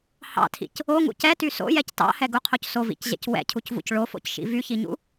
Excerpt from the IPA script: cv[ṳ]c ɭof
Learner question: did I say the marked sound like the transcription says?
no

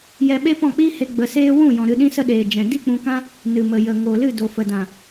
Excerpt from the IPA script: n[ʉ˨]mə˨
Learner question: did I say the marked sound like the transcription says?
no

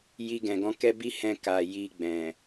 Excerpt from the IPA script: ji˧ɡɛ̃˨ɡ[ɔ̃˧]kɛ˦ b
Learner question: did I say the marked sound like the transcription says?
yes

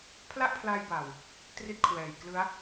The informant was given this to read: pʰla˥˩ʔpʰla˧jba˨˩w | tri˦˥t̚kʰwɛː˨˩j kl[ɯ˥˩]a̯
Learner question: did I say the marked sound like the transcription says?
no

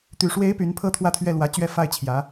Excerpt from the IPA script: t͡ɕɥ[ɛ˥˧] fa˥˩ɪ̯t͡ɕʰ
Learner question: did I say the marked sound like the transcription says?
yes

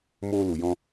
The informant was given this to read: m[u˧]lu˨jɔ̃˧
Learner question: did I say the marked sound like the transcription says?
no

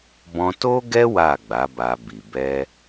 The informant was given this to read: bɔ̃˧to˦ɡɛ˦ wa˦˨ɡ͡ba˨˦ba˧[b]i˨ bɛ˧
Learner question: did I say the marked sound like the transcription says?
yes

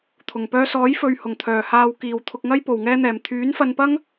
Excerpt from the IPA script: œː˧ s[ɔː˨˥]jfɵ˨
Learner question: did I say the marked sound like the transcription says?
yes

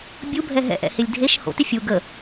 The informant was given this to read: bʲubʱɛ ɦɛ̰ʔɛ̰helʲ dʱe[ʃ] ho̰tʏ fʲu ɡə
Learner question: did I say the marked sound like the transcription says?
yes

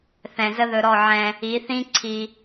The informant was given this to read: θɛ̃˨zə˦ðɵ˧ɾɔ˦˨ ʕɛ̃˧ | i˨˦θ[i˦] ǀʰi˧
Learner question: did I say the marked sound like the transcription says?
no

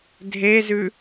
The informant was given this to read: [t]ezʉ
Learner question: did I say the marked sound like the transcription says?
no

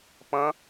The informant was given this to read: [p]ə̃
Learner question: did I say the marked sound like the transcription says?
yes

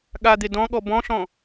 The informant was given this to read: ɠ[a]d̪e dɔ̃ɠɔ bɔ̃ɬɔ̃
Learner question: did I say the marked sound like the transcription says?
yes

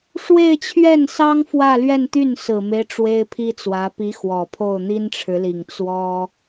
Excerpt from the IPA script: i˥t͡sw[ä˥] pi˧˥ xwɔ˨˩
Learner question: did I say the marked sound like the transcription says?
no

